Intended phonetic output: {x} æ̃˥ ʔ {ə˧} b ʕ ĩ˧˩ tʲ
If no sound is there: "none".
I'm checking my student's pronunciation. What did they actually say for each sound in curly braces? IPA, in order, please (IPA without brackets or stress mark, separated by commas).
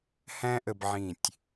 h, ə˧